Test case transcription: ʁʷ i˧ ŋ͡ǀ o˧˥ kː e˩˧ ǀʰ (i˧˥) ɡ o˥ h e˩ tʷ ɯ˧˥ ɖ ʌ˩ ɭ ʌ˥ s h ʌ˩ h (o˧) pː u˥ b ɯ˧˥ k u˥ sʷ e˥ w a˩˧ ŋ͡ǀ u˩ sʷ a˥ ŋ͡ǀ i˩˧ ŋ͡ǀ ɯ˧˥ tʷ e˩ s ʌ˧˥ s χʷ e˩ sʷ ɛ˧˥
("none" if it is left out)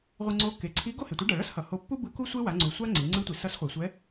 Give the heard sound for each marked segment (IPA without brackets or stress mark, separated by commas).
i˧˥, o˧